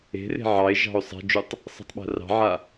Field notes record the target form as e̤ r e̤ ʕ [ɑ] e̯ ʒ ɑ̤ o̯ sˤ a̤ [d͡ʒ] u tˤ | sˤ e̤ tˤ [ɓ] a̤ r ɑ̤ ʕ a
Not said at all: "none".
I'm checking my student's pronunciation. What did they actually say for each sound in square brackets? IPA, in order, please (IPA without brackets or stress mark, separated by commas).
ɑ, d͡ʒ, ɓ